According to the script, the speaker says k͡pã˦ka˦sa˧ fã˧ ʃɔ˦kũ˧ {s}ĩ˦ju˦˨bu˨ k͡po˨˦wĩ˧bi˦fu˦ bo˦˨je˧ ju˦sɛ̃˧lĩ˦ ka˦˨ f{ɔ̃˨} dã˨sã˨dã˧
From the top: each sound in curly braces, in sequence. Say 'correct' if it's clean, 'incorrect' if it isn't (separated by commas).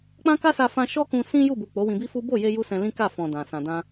correct, correct